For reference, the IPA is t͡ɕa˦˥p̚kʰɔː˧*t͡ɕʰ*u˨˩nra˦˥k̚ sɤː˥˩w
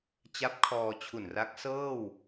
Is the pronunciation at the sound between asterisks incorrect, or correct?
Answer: correct